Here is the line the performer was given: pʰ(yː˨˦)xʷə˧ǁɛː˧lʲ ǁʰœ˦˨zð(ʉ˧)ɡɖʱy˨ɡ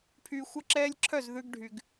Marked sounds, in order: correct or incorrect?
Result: incorrect: yː˨, correct

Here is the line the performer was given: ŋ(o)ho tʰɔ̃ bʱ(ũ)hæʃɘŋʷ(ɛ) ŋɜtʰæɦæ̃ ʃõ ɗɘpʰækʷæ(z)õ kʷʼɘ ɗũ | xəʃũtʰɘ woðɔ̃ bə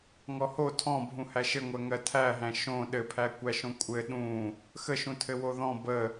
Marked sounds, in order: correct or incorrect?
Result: incorrect: ɔ, correct, incorrect: ɜ, incorrect: ʃ

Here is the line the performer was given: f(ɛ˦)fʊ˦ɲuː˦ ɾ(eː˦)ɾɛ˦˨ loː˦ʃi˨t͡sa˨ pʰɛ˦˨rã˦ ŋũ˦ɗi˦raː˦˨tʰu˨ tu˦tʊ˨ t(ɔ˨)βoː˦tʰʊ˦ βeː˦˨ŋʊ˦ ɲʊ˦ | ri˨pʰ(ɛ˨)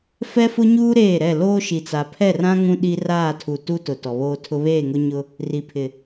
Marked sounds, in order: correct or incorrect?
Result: correct, incorrect: eː˦˨, correct, incorrect: ɪ˨

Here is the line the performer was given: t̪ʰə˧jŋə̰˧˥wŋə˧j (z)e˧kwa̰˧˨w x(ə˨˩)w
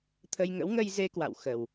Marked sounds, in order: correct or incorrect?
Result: correct, correct

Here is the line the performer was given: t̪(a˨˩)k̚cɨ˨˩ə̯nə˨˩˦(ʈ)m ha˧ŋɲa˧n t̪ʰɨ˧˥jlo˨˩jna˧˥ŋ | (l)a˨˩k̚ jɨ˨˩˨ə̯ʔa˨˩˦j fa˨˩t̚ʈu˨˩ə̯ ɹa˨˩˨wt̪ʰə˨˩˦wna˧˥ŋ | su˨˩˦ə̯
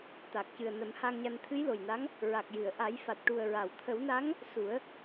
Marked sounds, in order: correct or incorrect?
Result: correct, incorrect: none, incorrect: ɹ

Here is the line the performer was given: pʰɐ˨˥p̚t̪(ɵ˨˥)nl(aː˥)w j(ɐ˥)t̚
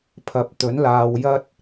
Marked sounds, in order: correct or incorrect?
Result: correct, incorrect: aː˨, correct

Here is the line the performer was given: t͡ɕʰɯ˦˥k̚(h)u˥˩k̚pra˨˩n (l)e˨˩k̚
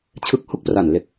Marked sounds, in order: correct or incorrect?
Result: correct, correct

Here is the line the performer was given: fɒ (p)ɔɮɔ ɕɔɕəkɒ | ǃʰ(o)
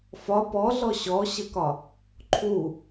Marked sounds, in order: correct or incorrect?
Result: correct, incorrect: u

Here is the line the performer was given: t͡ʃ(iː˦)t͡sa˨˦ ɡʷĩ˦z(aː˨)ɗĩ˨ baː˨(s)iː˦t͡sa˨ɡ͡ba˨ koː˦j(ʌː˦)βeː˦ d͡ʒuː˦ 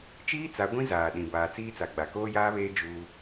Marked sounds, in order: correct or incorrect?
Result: correct, correct, incorrect: t͡s, incorrect: aː˦

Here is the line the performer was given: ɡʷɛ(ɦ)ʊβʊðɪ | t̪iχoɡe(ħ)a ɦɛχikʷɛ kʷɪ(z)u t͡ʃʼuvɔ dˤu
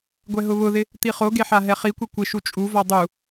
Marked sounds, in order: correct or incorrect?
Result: correct, correct, incorrect: ʃ

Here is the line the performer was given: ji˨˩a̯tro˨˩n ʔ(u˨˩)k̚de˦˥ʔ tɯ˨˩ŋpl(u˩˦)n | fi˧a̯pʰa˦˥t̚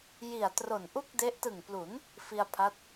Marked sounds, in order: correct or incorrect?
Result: incorrect: u˥˩, correct

